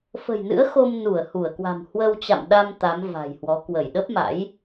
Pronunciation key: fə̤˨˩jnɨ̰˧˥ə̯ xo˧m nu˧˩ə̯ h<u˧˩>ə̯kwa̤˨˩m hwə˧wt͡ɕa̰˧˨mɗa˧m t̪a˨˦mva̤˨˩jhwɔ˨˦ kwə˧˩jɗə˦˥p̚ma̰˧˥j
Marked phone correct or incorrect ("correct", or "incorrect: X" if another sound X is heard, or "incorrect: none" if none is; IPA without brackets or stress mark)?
correct